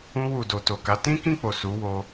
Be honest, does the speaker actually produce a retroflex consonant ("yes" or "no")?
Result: no